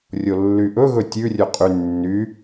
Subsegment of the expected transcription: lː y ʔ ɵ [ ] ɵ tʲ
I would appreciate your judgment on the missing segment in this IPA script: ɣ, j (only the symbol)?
ɣ